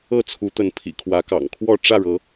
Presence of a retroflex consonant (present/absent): present